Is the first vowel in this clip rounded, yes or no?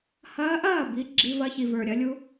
no